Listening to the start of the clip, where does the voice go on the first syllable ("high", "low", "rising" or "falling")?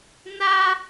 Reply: high